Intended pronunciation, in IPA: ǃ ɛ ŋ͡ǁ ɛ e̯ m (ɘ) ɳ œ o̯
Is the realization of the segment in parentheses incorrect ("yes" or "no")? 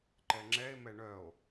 yes